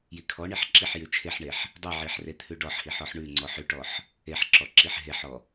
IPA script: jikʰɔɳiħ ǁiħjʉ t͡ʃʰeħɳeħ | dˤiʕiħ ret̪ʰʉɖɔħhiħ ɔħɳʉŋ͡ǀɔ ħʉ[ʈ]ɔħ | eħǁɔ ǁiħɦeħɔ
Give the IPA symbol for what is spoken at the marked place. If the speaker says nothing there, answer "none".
ʈ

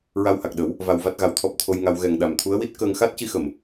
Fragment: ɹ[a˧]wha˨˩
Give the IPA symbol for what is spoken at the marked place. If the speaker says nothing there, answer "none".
a˧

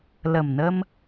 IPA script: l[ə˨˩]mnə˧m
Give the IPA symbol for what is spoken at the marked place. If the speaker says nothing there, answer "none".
ə˨˩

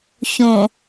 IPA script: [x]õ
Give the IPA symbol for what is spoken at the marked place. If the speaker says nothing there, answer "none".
ç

